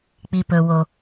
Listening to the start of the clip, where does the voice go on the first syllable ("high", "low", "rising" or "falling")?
low